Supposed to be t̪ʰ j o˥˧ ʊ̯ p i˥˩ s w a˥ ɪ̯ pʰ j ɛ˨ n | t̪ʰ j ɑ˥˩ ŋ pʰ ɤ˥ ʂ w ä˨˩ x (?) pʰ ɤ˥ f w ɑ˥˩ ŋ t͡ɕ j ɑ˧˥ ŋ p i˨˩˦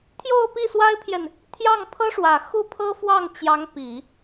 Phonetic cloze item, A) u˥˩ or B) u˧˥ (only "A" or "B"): A